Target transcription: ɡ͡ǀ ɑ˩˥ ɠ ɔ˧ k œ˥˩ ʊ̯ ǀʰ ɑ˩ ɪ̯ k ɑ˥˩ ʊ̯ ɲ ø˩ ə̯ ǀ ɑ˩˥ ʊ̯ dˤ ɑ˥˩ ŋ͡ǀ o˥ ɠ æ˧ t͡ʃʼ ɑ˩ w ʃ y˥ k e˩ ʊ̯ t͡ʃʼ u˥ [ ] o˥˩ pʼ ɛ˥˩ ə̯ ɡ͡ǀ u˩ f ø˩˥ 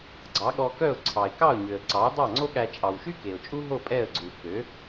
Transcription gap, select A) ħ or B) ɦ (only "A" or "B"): B